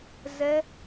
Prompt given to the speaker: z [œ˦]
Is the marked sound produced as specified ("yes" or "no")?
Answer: no